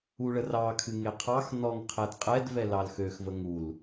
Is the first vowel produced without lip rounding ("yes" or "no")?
no